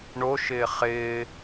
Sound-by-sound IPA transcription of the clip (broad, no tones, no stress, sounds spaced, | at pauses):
ɳ o ʃ ɪː χ ɪː